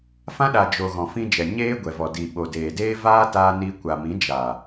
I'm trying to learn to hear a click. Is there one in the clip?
no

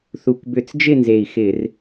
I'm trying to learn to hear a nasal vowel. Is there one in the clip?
no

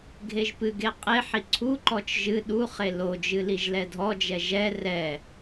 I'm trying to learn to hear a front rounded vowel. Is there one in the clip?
no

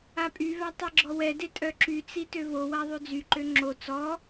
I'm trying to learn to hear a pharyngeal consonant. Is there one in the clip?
no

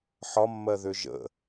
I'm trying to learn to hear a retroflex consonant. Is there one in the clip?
no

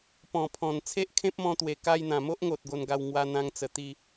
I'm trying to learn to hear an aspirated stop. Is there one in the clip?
yes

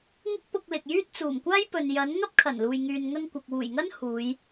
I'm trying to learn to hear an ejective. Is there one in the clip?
no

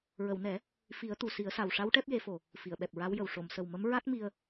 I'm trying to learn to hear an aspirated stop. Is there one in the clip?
no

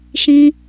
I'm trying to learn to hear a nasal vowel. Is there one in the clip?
yes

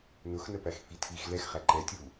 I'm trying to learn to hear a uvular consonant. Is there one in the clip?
yes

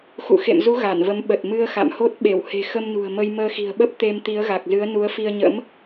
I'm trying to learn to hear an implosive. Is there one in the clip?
yes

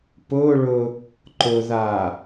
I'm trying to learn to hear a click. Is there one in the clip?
yes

